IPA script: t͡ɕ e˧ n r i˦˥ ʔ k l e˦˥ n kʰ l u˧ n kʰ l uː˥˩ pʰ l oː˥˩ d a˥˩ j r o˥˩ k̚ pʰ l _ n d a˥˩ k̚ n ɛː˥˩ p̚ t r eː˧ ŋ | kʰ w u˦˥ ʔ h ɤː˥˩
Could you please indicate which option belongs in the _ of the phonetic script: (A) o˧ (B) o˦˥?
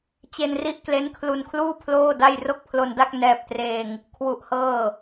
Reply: A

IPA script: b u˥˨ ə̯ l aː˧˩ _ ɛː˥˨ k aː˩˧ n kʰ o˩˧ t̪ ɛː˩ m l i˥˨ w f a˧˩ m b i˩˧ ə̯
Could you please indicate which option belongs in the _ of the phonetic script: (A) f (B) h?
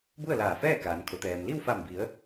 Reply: A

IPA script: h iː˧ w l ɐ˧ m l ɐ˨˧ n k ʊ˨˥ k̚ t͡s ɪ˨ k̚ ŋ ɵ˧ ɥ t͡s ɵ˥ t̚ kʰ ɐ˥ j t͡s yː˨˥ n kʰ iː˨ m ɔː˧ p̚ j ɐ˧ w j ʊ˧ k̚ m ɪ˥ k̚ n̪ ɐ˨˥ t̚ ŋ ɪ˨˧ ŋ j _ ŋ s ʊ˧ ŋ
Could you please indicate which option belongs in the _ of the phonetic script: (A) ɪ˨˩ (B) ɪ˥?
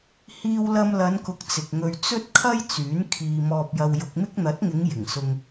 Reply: A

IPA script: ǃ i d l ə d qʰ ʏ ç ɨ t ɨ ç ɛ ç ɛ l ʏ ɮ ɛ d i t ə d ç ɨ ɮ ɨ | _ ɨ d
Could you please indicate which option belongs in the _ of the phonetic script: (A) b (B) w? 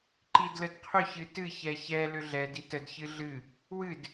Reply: B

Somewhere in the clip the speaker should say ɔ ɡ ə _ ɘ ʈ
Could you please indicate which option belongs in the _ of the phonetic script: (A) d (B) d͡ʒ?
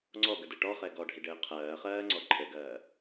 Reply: A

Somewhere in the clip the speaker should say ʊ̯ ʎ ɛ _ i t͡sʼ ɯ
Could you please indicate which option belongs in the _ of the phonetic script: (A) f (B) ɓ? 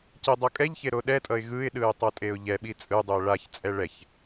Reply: B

